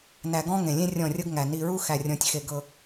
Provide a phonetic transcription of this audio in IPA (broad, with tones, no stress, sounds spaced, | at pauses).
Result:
n æ˨ ɡ ɔ̃˦ ŋ ẽ˨ lʲ ẽ˦ rʲ ɔ̃˦˨ rʲ ɤ˦ ɡ ŋ æ˨ n i˨ ɹ u˦ x æ˨ rʲ ɔ̃˨ tʲ x e˨ ɡ ɤ˦